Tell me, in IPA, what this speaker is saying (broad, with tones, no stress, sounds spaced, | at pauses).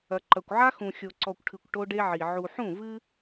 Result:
ɐ˨ ǃ ɐ˨ kʷ ʕ a˦ x ũ˨ xʲ o˨ ǀ ɔ˨ kʷ ʈʰ ɨ˨ kʷ ʈ o˦ ɖ e˦ ʕ i˨ ʕ u˨ ħ ũ˦˨ v ɨ˦